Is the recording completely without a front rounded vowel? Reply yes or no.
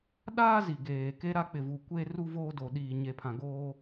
yes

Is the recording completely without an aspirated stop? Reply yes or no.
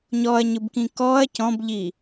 yes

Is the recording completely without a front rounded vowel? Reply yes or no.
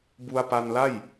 yes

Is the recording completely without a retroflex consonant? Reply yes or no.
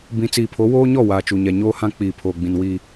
yes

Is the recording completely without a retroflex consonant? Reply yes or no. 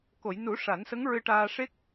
no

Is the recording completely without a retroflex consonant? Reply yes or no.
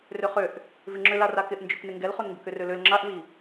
yes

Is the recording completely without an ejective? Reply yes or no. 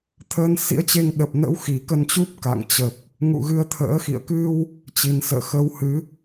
yes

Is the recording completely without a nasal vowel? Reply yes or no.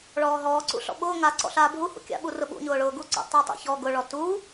yes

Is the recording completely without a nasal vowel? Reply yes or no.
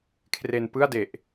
yes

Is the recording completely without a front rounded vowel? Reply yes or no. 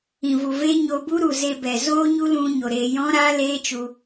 yes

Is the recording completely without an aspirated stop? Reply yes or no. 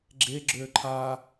no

